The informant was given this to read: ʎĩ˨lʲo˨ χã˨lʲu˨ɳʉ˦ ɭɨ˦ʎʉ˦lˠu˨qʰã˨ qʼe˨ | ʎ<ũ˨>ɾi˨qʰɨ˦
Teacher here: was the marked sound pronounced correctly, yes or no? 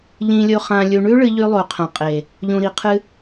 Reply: yes